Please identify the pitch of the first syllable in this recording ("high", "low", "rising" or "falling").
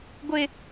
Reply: high